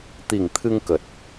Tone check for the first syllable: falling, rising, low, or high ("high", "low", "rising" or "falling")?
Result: low